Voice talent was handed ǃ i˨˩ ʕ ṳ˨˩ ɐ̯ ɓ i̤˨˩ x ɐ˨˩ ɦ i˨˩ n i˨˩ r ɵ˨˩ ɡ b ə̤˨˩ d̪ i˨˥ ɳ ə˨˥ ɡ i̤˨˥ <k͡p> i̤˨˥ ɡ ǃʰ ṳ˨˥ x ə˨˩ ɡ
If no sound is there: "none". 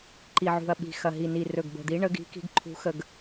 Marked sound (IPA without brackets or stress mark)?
k